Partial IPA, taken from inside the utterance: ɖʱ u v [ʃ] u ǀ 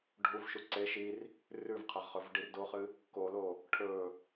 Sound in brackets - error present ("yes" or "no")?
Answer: no